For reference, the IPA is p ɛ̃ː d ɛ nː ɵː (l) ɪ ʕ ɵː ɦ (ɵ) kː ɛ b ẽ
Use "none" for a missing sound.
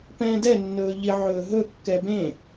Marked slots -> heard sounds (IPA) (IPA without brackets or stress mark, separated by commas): ʎ, ɵ